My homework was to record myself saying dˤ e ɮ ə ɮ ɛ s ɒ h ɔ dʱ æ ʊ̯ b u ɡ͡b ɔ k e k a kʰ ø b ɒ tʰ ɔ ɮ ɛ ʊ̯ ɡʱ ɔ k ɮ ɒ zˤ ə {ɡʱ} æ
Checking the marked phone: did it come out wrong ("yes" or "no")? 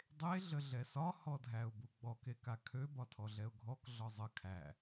yes